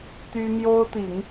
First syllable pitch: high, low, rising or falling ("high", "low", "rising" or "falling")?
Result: high